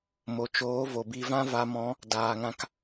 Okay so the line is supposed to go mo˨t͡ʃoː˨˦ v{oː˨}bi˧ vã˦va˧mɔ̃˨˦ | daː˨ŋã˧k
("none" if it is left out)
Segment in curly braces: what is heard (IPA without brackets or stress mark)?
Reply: o˨